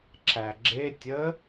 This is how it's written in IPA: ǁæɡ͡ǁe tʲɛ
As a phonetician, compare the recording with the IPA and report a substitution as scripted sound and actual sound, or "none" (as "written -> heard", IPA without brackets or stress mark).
ɛ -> ə